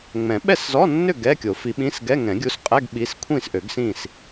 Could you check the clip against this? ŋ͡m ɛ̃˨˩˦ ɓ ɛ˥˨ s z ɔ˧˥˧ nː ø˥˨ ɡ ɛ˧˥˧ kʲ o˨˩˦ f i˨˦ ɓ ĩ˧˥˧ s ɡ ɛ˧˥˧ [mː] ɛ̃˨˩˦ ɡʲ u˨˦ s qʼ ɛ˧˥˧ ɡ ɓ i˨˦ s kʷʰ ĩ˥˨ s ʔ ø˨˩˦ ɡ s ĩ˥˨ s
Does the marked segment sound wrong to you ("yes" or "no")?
yes